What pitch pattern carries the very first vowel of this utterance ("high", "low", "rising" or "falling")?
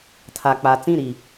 low